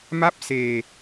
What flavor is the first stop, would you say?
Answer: plain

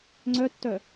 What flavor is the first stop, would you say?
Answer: click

